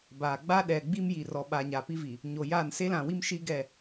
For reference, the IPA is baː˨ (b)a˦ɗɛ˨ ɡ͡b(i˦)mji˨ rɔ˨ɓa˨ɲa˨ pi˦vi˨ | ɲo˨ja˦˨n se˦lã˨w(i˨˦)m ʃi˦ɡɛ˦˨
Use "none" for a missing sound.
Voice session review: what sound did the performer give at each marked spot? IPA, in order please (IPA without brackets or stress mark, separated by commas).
ɡ͡b, i˦, i˦